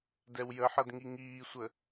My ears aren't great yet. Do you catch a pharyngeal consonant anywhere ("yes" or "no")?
yes